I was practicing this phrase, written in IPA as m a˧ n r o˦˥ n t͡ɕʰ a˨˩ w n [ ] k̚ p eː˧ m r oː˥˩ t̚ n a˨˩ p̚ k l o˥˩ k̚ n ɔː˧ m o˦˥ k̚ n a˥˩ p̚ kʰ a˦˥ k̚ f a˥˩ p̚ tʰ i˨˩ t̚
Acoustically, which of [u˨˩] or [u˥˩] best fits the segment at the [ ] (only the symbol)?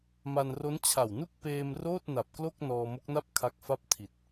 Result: u˥˩